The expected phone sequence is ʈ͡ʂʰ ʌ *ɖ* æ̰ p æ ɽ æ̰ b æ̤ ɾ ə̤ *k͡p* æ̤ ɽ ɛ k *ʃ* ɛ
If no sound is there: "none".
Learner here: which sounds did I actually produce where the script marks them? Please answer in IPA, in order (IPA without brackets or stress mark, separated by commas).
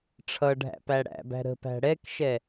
ɖʱ, p, ʃ